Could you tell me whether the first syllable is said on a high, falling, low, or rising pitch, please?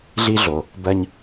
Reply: high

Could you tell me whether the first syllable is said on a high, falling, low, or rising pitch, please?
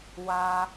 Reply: high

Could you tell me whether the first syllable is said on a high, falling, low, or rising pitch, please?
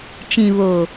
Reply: low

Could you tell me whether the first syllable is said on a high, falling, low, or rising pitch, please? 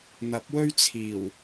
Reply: rising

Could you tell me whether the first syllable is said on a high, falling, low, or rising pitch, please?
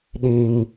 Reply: low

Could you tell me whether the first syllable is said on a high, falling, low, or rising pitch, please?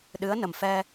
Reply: rising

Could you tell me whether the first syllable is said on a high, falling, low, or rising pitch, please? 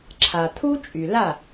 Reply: low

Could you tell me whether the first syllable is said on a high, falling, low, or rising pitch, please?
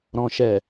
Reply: low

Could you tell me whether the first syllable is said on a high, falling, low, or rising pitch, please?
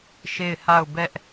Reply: falling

